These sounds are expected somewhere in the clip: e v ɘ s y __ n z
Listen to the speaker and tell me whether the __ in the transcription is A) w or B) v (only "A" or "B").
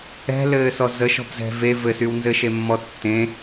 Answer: A